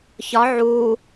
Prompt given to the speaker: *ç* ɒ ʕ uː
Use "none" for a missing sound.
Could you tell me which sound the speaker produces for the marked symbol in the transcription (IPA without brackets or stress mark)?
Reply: ç